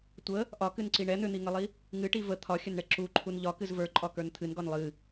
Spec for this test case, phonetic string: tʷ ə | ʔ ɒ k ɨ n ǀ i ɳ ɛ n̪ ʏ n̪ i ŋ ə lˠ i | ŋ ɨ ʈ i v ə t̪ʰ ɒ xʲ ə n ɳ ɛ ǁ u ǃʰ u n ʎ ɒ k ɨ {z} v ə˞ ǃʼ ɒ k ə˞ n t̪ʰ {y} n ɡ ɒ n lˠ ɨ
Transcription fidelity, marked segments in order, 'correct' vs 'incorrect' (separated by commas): correct, incorrect